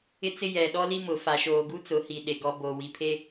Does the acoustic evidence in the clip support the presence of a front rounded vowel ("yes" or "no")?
no